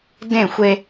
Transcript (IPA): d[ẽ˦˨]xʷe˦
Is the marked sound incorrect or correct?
correct